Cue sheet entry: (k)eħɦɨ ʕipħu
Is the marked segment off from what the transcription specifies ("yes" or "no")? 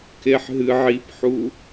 no